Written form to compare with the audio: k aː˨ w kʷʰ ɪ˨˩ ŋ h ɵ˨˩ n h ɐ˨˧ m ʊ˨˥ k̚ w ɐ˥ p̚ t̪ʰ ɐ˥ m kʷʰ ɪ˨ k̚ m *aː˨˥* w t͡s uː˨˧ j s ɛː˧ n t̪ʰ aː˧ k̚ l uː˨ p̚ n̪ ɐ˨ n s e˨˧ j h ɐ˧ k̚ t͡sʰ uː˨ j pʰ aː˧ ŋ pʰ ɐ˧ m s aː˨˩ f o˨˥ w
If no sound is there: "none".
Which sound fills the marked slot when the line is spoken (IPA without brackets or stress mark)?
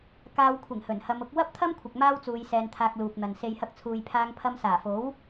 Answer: aː˥